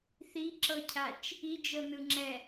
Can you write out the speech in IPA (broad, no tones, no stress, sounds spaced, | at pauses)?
θ i ǁ ɤ cʰ a t͡ʃ | i d͡ʒ ɤ n ɯ ŋ͡ǁ ɛ